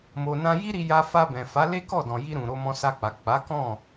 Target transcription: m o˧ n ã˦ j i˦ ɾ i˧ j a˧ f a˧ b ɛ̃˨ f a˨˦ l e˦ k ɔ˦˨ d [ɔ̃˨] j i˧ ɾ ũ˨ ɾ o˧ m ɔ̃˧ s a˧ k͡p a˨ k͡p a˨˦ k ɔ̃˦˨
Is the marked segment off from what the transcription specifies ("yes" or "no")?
no